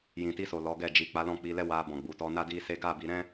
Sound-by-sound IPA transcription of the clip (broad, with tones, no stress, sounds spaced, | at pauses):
j ĩ˨ t i˧ s o˨ l ɔ˨˦ ɡ ɛ˦˨ d͡ʒ i˨ k͡p a˨˦ l ɔ̃˦˨ k͡p i˧ l ɛ˦ w a˧ b ɔ̃˨ ɡ͡b u˨ t ɔ˧ n a˦ d i˦ s e˦ ɡ a˦˨ b i˧ ɾ ɛ̃˦